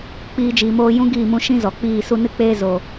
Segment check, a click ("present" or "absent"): absent